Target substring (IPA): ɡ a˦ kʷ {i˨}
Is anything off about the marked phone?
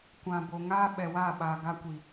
no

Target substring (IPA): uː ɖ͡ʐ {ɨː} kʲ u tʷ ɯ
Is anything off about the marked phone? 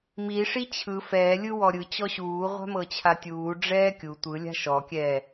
yes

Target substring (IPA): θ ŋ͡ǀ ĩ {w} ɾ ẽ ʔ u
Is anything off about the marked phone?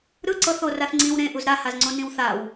no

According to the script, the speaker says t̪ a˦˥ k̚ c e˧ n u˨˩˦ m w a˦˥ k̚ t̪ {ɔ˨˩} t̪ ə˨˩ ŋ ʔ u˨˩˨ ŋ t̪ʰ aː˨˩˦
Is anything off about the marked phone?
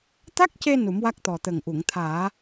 no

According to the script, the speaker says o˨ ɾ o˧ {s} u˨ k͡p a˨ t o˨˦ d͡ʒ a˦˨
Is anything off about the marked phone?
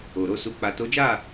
no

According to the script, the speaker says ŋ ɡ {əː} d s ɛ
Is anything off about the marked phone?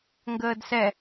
no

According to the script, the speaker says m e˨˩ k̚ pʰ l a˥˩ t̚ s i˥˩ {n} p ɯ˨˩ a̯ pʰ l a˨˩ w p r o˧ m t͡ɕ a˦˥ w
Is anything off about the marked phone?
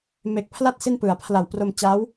no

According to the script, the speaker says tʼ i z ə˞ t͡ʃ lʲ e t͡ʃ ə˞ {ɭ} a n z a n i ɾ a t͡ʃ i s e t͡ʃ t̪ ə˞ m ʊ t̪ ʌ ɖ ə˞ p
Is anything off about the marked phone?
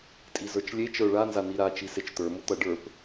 no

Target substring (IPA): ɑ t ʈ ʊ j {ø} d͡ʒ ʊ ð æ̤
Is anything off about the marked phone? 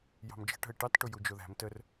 yes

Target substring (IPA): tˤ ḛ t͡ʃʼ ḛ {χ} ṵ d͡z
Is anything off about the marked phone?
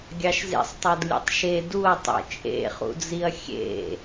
no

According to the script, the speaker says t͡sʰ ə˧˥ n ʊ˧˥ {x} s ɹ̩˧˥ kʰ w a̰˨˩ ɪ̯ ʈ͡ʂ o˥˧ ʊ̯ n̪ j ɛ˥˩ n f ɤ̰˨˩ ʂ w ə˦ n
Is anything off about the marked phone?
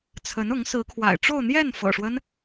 yes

